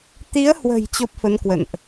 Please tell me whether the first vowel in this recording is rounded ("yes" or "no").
no